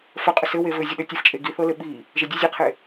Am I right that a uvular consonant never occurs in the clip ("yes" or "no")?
no